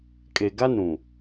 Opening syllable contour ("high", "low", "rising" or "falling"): low